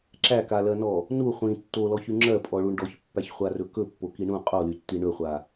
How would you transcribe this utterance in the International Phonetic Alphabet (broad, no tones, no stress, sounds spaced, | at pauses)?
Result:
ǁ æ k a l ɜ n ɔ | n u χʷ ĩ tː o l ɔ ç y ŋ͡ǁ ɜ pʼ ɔ ɭ u ɳ ɖ ɔ ç pː æ ç χʷ a r ɵ k ɵ pː o k i ɳ ũ qʼ o l y tː i ɳ ɵ χʷ a